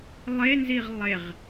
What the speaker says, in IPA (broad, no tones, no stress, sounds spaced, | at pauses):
lˠ e n z i ʁ lˠ e ʁ